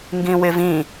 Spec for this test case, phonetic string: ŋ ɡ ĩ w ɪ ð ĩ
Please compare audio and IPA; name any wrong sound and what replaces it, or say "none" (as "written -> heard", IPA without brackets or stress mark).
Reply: ð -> v